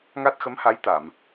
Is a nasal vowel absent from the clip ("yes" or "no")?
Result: yes